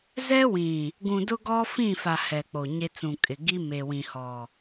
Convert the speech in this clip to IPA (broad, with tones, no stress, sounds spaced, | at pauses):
z ɛ˦ w ĩ˨ | ɡ ũ˨ d ʊ˦ ɡ ɔ˦ f ĩ˦˨ f a˨ h ɛ˨ k͡p o˨ ɲ e˦ t͡s ũ˨ kʼ ɪ˨ ɡ i˦ m e˨ w ĩ˨ h ɔ˨